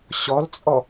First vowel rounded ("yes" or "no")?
yes